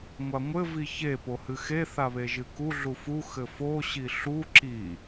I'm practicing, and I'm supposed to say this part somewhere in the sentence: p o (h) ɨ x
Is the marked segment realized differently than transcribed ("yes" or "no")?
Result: no